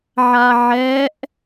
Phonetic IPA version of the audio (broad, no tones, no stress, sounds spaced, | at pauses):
ʕ a ʕ ɛ ʔ